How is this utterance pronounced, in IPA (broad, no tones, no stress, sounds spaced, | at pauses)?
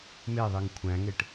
m e ðˤ i ŋ kʷʰ æ̃ ŋ e ʈ